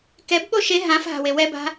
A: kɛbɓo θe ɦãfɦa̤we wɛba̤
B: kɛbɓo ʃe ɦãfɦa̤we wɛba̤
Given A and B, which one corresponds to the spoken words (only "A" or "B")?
B